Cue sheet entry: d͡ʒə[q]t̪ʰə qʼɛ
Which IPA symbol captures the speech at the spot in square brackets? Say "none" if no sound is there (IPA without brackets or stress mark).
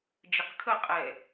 q